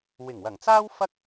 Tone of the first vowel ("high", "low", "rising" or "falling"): low